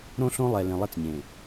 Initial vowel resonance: nasal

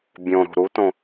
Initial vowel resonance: nasal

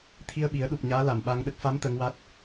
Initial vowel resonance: oral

